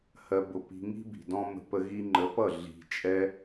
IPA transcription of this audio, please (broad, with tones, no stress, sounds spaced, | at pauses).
h ɜ˧ b ʊ˧ p i̤˧ ŋ i̤˦ b i̤˨ d ɔ̃˦ m ə̤˧ p ə˧ ɣ i˧ ŋ͡ǃ ə˨˦ p ʌ˦˨ ɮ i̤˨ t͡ʃʼ ɛ˧